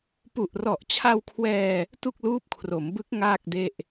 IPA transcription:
pu˨˩ʔrɔ˨˩ʔt͡ɕʰa˧wkʰwɛː˧ | tu˥˩k̚luː˦˥p̚kʰro˩˦mbɯ˦˥k̚ ŋaː˥˩k̚de˥˩ʔ

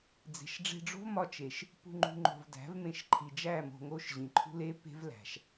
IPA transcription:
d͡ze̤˨ʃɖ͡ʐe̤˧ɖ͡ʐo̤˦vmɒ˧ t͡ʃe˨ʃ | pṳ˧ ŋ͡ǃṳ˧ ŋ͡ǃo̤˨v dæ̤˨˦vmẽ˧ʃǃʰi˨d͡ʒæ˦˨ mo̤˧ŋo˦ʃ ʑĩ˨ǃʰṳ˦le˦ pe̤˦vlæ̤˨ʃ

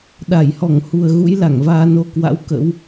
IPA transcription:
ɗa˧˩jhɔ˧˩ŋhu˨˩ə̯ ɣṵ˧˥jla˧˩ŋ vaː˧no˧ kwa̰˧˥wkə̰˧˥w

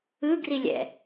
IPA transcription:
ɯɡrilʲɛ̰

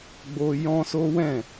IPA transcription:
ɡ͡bo˧ jɔ̃˦so˦wɛ̃˦˨

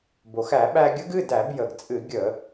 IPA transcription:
bo˩xæ˧˩˧ɓæ˧ɡʲə˦˥ɡ ɨ˩˧˩dæ˧˩˧b jə˩ɡ t͡sʼɨ˧˩˧ ɡʲə˧˩˧

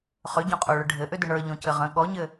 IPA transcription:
χʏɟõqʼoɭʏ ɖʱɘʔʏdʏ ɳə˞ʎõcɘ ʁə̃ ɠɔɲɘ

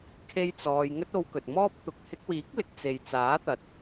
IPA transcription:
kʰe˥jt͡sɔː˧j ŋɵ˥t̚o˧wkɵ˨t̚mɔː˥p̚ t̪ʊ˨k̚hɪ˧k̚wiː˨˥k̚lɪ˨k̚ t͡se˨jt͡saː˨˥t̪ɐ˨t̚

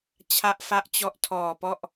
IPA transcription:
t͡ɕʰa˦˥ʔfa˦˥ʔt͡ɕɔ˦˥ʔ tʰɔː˨˩pɔ˥˩ʔ

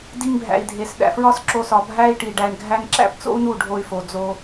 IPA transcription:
di˧ŋbʱæ̰˨i̯dʱe˨s ɗæ̰˨fɹɒ˦sǁo˧sɒ˨ bʱæ˦i̯ ʈi˨ɖæ˧ɳɡʱæ˦ŋ ǁæ̰˦pt͡so̰˦u̯nu˦˨ ɖʱo˧y̯fo˨d͡zo˧

